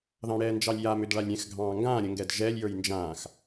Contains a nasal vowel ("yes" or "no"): yes